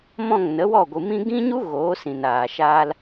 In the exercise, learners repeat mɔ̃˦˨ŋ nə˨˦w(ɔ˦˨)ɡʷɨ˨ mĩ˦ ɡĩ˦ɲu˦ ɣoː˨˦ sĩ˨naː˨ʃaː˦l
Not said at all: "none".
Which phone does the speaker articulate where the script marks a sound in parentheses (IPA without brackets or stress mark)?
ɔ˦˨